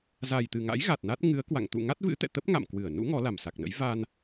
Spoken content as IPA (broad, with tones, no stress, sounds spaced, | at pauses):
z a˨˩ j t̪ ɨ˨˩ ŋ a̰˧˥ j ɣ a˨˩ t̚ n a˦˥ t̚ ŋ ɨ˨˦ ə̯ k w a̰˧˨ ŋ t̪ ṵ˧˨ ŋ a˦˥ t̚ v ɨ̰˧˥ t̪ ɛ̰˧˨ t̪ ə˦˥ p̚ ŋ a̰˧˨ m k w ɨ˧˩ ə̯ n ṵ˧˥ ŋ ɔ˨˦ l a˨˩ m s a˨˩ k̚ n ə̰˧˥ j v a˧ n